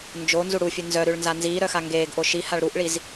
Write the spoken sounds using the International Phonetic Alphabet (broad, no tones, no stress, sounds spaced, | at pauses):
n d͡ʒ o n z u ɽ u fʲ ʉ n z œ ɾ ʉ ɭ n z a n z iː ɾ œ x a ŋ ɡ eː ɡ ʔ o ʃ i h a ɭ ɾ u ʔ ɭ i z